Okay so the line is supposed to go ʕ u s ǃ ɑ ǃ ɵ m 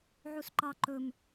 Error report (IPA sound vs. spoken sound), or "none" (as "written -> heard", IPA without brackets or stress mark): none